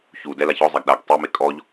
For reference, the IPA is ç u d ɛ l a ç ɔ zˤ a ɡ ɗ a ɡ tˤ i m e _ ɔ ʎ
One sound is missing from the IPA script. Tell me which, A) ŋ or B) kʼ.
B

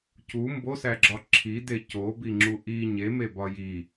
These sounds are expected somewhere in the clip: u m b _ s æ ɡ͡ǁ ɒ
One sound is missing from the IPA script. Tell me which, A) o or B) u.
A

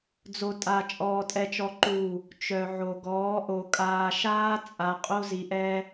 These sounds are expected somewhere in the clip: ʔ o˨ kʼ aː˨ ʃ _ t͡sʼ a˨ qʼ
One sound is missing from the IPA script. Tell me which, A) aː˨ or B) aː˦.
B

